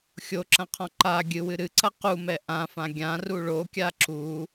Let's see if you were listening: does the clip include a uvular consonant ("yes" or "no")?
yes